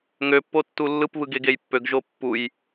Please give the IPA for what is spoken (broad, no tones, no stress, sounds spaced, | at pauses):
ŋ ø pː o tː u lː ɯ p β ɯ ɡ e ɡ e j pː ø ɡ ʒ o pː u j